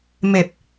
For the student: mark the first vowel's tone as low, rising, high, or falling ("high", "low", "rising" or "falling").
low